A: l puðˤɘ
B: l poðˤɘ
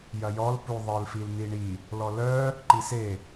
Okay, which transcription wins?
A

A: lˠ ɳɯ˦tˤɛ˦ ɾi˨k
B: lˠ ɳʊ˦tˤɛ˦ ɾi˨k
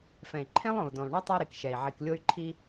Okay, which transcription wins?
A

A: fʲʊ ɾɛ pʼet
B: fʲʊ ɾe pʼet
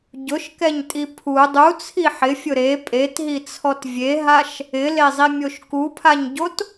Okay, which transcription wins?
B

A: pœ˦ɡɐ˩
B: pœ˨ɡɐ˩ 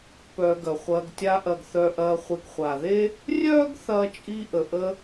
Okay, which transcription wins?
B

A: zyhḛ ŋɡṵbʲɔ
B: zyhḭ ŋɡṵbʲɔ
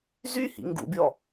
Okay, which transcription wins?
B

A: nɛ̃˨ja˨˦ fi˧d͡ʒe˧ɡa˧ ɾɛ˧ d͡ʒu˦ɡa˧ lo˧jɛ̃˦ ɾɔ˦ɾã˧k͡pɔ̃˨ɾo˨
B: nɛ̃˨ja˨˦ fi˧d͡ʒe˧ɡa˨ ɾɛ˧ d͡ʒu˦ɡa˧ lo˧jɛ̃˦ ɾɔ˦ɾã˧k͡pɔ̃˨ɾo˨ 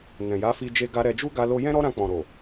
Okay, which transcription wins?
A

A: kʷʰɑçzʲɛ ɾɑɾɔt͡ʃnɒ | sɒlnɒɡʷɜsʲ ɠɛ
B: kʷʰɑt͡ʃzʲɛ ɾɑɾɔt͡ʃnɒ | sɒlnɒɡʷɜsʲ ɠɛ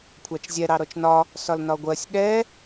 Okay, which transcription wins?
B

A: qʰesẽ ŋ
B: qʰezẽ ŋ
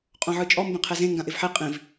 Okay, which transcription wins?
B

